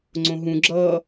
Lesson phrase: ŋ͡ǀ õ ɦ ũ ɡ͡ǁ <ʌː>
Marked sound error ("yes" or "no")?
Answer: no